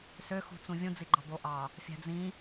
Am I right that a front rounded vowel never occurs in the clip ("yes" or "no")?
no